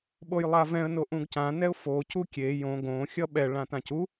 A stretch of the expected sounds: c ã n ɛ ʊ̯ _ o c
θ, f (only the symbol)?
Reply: f